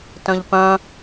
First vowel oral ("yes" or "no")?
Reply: no